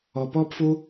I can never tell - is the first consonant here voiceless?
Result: yes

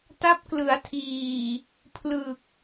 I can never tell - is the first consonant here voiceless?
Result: yes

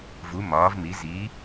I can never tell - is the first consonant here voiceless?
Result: no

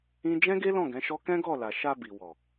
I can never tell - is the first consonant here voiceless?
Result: no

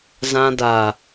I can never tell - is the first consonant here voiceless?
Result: no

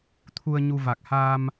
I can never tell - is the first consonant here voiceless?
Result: yes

